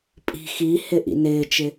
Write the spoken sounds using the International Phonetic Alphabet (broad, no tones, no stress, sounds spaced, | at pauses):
pʼ i̤ x i h ɪ ʔ ḭ n ɪː t͡ʃ ɪ